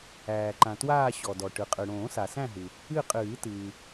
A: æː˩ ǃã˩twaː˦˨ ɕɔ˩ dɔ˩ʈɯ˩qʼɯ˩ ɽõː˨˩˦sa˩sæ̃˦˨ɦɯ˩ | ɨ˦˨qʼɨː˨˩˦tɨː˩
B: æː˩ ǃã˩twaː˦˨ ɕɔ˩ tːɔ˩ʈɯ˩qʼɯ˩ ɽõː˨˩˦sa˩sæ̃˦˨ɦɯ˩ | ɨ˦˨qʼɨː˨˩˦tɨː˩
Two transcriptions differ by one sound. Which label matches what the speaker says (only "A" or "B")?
A